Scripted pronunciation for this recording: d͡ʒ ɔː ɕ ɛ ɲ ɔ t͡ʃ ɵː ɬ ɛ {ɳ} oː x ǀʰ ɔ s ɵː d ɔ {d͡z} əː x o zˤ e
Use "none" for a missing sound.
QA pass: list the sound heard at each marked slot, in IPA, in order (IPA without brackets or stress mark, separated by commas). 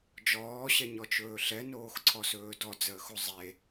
n, d͡z